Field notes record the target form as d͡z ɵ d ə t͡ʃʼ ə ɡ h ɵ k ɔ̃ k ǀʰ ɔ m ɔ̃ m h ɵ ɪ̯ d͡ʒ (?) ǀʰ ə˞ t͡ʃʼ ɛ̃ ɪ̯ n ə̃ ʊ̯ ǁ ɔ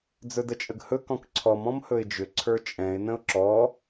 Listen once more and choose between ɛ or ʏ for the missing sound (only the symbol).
ʏ